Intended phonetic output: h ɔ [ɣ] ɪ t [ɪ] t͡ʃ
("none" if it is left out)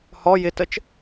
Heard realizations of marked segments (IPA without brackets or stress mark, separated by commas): j, ə